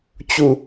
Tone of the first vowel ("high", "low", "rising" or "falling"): falling